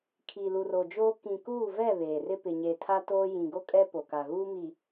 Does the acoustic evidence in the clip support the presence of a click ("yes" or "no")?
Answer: no